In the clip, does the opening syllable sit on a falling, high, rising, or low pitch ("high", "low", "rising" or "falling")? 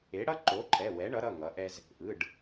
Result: rising